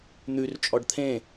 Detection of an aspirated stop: present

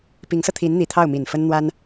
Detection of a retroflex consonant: absent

